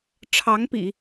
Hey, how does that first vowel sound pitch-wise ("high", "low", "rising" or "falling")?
rising